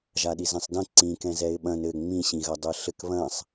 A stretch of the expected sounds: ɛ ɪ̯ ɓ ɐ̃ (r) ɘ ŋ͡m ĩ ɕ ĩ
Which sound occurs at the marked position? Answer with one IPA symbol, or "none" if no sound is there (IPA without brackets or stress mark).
n